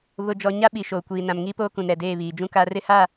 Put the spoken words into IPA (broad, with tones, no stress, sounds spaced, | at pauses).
β ʊ˨ d͡ʒ ɔ˨ ɲ a˦ ɓ i˨ ʃ oː˨ kʷ iː˨ n ã˨ m ŋ iː˦ p oː˦ k ũ˨ n ɾ ɛ˨ d eː˦˨ β iː˨ d͡ʒ ũ˦ k a˦ r ɪ˦ h a˦˨